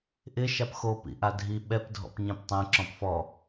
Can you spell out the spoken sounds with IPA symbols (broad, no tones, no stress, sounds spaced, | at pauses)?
ʔ ɪ ʃ a p x o p ḭ ʔ a dʱ i ɓ ɛ p dʱ ɔ̰ p ɲ ɛ̃ p tˤ ɛ̃ ǁ ɔ̃ p f ɔ